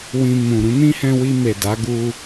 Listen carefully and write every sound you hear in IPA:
w ĩ˧ m ũ˨ ɾ ũ˨˦ n ĩ˦ h ɛ̃˧ w i˧ m e˨ d a˨˦ ɡ u˧

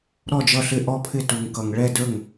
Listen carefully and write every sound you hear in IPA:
ɾ ɔ˥˩ d͡ʒ ʌ˥˩ ɬ ɪ˥˩ ʔ ɔ˥˩ pʰ ɪ˥˩ t u˨ ŋ k ʌ˨ ŋ ɭ ɛ˥˩ d ə˞˥˩ ŋ

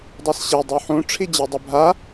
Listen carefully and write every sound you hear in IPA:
dˤ a s ɕ e dˤ o ħ ũ ʈ͡ʂʰ i d͡ʑ e dˤ ɯ bʱ a

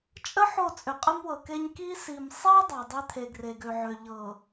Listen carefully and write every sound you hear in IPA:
t͡ʃʼ ə˦ ħ o˦˨ t͡sʼ ʏ˨ qʼ ə˦ m w ɤ˨ k e˦ ɲ k i˦ s i˨ m sˤ e˦ dˤ a˨ dˤ e˦ t̪ʰ e˨ ɡ r e˨ ɡ ø˨ ʕ ø˨ ʎ ɤ˨

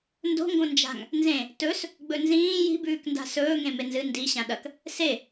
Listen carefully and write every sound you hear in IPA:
n d o̤ ŋ ɡ õ n d͡ʒ a̤ ŋ | n z ẽ | t ɵ s | ɡ͡b ɵ n z ĩː j i̤ b ʉː k n d a̤ s ɵː ŋ ẽ m e n z ɨ n d i ɕ ã ɗ ɐ k | s e

